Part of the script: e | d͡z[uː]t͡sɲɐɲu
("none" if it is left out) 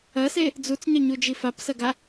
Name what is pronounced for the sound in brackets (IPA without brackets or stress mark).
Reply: u